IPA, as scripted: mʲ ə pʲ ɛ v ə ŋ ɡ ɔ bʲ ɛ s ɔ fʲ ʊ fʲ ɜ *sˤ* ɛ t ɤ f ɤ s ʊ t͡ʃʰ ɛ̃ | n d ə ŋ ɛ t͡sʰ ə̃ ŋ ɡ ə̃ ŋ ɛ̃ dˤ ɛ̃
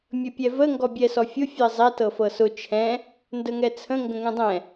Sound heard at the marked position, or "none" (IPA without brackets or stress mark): zˤ